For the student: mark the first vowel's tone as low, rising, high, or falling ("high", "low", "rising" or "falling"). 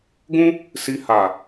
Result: high